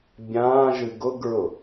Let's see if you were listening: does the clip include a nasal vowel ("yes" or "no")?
yes